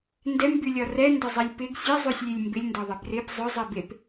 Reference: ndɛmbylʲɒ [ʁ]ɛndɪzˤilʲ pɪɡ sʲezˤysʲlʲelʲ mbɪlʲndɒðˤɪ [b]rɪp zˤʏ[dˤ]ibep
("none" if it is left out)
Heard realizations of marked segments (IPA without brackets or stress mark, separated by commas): r, b, zˤ